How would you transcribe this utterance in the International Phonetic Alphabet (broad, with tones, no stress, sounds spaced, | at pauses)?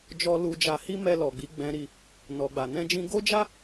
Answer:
d͡ʒ ɔ˧ l u˧ d͡ʒ a˧ h i˦ m ɛ˧ l ɔ˨ ɡ͡b i˧ ɡ͡b ɛ̃˧ ɾ i˧ | n ɔ˨ ɡ͡b a˨ n ɛ̃˧ d͡ʒ ĩ˧ ɡ o˦ d͡ʒ a˦